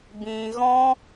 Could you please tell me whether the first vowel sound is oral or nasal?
nasal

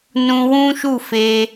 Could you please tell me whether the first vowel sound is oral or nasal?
nasal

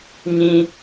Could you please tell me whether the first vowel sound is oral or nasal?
nasal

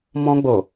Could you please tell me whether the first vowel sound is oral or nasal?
nasal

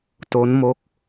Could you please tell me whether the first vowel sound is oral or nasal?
oral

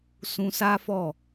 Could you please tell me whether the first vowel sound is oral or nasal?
nasal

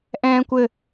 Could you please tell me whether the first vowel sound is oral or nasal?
nasal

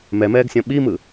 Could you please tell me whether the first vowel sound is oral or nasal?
oral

